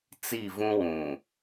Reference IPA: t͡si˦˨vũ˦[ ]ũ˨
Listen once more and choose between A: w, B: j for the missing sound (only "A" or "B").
A